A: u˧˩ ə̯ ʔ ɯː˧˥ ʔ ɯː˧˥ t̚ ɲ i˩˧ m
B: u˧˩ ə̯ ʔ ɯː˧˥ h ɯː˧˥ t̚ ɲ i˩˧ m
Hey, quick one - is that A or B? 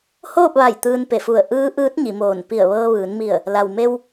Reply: A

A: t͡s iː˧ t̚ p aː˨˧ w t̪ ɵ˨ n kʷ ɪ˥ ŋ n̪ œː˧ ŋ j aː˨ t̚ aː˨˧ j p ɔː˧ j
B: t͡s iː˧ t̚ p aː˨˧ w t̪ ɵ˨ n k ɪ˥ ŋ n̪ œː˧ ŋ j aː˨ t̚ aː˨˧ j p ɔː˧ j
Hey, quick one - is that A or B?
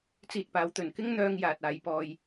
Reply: B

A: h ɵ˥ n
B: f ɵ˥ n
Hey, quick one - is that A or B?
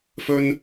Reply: B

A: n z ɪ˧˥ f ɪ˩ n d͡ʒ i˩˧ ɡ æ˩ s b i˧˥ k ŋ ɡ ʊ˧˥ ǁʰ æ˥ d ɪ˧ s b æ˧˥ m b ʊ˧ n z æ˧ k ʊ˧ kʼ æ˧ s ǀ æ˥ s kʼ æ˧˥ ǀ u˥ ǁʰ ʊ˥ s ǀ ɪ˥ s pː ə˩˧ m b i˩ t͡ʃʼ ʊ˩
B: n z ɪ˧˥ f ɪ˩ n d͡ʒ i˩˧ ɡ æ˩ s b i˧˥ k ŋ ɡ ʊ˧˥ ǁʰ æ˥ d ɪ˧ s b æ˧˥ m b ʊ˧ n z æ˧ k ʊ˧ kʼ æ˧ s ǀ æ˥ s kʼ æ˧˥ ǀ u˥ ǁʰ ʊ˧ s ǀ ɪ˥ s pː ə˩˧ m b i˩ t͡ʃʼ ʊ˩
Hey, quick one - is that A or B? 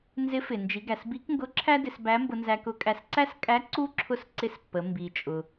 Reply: A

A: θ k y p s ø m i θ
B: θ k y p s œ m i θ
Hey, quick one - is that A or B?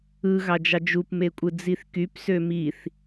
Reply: A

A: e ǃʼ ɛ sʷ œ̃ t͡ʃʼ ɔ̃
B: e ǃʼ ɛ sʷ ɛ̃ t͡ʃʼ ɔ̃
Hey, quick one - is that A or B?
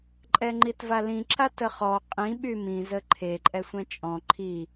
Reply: B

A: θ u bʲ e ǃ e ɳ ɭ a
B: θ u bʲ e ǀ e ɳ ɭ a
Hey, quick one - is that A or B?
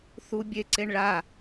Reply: B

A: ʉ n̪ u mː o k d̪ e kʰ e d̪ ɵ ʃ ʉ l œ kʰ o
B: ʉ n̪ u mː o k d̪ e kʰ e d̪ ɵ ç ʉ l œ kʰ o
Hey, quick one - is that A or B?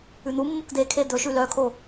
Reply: A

